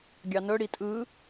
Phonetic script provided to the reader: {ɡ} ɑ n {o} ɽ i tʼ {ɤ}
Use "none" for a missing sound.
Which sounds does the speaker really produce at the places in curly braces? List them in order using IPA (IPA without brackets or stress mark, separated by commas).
ɡʲ, ɵ, ɯ